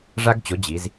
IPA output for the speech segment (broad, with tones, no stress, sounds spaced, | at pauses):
ʐ a˥ ɡ t͡ɕ o˨˥ d͡ʑ i˩˧ z